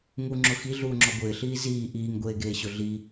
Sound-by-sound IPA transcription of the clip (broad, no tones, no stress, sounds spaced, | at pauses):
ŋ u ŋ͡ǁ ʊ x i ɮ uː ŋ͡ǁ ɔ ɡʷ ɪː ɬ iː z iː ʔ iː ŋ ɡʷ eː ɡ eː ɕ ʊ ɮ i